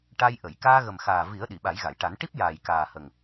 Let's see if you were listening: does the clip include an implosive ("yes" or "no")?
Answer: yes